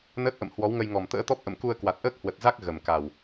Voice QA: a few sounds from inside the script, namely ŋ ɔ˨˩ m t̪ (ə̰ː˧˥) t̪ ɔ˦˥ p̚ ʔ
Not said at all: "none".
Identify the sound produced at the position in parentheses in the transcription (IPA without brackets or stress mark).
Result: ə̰ː˧˥